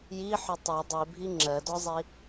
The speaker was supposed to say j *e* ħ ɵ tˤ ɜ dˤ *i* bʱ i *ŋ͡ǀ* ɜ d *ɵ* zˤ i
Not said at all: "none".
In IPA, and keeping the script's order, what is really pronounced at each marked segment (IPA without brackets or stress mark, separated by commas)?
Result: i, i, ŋ͡ǁ, ɔ